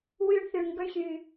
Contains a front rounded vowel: yes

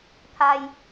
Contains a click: no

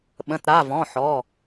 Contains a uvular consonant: no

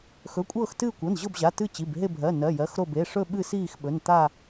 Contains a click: no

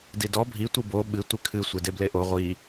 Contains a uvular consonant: yes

